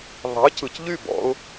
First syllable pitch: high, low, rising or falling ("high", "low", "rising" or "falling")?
rising